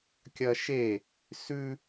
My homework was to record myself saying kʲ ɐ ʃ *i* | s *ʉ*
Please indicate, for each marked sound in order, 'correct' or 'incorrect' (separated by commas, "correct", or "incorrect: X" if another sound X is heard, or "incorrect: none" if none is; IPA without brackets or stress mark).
incorrect: e, correct